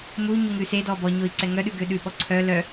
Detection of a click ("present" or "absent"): present